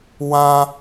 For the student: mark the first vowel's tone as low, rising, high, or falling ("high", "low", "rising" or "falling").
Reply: low